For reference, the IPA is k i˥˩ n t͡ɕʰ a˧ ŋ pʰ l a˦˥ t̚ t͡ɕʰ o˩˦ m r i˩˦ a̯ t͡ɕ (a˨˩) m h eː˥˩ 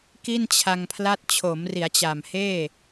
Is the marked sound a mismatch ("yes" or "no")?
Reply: no